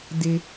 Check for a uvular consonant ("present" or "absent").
absent